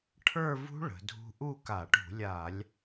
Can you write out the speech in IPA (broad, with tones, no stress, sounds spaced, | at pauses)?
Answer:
ʈʰ ə˞˥˧ v ṳ˦˥ ɭ ə̤˩˧ dʱ ṳ˦˥ ʔ u˥˧ k a˧˩˧ ʈ ṳ˧˩˧ lʲ a˧˩˧ lʲ